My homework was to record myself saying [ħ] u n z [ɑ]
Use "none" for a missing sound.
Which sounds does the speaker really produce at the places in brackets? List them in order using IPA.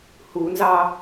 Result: h, ɑ

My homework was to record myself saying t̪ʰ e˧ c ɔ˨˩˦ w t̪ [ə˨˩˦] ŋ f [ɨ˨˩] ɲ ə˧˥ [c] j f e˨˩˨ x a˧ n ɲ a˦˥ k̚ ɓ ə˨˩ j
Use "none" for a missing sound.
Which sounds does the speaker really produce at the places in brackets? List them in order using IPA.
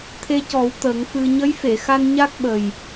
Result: ə˨˩˦, ɨ˧, none

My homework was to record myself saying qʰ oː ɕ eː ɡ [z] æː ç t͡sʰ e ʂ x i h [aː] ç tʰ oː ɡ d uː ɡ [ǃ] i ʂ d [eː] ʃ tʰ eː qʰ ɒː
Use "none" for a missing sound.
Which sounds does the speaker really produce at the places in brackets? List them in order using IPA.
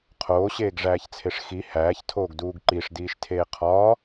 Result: ʐ, æː, ǃ, iː

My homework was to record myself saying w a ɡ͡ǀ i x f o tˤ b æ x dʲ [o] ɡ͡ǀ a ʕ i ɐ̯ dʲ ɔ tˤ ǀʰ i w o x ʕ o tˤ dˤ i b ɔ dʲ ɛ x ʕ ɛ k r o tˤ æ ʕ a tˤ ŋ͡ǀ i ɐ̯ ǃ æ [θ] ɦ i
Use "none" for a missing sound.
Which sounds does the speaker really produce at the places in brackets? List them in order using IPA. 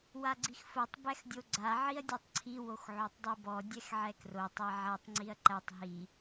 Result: o, tˤ

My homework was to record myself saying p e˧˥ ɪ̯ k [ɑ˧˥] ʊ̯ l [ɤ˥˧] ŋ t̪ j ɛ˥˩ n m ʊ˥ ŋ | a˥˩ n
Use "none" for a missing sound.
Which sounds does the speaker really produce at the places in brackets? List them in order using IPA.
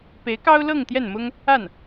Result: ɑ˥, ɤ˥˧

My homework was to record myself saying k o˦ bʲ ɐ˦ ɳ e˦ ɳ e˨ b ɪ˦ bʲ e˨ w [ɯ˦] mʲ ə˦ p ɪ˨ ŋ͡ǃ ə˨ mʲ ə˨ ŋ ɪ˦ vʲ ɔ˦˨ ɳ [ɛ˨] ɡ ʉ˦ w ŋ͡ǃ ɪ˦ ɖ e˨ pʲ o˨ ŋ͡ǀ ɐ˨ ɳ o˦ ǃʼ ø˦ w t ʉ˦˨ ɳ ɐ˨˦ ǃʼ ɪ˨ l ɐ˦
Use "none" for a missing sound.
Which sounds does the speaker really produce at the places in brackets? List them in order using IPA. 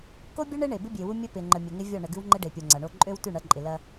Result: u˦, ə˨

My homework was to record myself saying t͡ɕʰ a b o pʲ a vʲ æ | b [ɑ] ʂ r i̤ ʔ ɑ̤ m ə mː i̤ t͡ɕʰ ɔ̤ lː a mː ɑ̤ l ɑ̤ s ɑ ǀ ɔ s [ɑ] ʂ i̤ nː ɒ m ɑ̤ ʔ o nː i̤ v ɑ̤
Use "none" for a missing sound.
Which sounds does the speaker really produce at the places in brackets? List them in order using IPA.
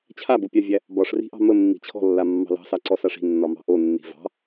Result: ɒ, a

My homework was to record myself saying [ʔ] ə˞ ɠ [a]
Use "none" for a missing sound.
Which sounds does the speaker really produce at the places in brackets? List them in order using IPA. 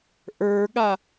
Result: ʔ, a

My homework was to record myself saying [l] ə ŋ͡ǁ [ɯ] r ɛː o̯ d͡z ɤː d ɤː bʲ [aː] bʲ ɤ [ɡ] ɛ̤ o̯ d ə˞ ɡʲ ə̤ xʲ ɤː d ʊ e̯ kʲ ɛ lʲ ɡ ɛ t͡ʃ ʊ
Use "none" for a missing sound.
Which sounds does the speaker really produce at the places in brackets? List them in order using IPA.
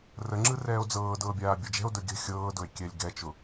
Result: r, ɯ, aː, d͡ʒ

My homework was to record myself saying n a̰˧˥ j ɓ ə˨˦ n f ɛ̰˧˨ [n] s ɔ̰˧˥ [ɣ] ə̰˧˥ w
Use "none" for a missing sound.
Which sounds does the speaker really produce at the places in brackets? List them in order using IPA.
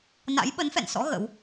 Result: n, ɣ

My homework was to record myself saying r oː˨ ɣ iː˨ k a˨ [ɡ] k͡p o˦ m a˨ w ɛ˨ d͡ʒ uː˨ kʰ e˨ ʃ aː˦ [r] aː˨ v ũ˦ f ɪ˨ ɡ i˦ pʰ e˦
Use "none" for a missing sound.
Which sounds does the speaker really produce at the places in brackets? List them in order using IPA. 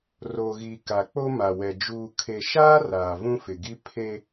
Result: none, r

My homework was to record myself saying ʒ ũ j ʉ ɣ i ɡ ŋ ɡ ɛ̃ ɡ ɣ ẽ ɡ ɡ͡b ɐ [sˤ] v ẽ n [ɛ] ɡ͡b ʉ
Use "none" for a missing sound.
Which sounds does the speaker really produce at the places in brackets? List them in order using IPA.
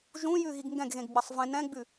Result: sˤ, ɛ̃

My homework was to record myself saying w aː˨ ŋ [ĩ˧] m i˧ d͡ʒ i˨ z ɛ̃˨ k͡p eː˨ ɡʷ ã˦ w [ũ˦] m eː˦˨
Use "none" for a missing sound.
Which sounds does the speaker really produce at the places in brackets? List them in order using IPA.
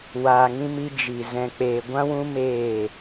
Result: ĩ˧, ũ˦

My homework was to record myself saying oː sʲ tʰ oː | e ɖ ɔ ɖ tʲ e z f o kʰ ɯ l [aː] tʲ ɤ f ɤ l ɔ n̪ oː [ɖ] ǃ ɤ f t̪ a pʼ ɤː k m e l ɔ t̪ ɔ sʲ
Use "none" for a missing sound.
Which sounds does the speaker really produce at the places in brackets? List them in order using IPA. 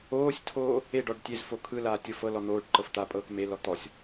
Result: aː, ɖ

